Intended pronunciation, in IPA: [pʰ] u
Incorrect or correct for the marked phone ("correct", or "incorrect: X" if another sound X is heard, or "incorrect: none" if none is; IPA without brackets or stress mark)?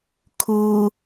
incorrect: kʰ